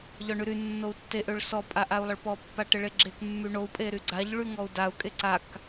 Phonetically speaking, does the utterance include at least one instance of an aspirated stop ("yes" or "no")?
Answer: no